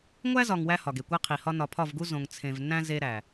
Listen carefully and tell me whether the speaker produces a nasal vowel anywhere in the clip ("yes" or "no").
yes